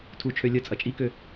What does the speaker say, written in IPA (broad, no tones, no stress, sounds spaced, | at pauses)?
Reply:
tʰ u t͡ʃʰ ø lʲ ə t͡sʼ ɐ t͡ʃʼ i k ø